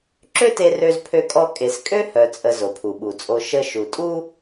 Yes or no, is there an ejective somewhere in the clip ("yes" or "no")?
yes